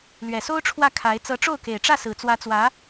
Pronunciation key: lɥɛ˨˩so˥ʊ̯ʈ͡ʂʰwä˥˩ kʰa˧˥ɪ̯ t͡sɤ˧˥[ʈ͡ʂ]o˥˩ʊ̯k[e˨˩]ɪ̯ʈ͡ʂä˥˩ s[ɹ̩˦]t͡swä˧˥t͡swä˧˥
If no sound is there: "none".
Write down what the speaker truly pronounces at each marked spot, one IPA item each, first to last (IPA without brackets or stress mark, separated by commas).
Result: ʈ͡ʂ, e˨˩, ɹ̩˨˩